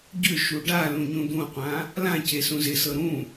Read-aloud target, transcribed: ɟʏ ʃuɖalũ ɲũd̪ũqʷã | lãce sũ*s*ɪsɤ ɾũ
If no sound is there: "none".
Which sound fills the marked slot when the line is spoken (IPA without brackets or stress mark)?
z